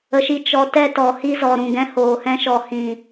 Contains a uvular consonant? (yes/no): no